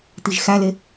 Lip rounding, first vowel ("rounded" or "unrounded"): unrounded